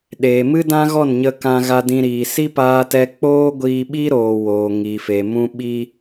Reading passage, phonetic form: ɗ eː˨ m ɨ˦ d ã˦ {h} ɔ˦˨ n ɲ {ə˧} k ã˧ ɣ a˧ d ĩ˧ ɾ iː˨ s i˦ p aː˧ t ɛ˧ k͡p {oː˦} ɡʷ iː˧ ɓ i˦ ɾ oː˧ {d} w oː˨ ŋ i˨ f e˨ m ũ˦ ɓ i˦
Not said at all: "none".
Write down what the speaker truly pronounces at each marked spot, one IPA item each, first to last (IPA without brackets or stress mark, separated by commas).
ɣ, ə˧, oː˦, none